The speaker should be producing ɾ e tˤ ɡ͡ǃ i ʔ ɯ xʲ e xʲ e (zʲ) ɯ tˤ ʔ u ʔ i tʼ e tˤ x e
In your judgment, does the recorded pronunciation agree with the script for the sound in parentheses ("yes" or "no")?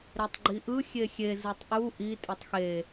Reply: no